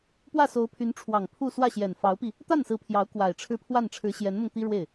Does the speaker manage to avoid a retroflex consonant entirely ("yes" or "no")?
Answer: no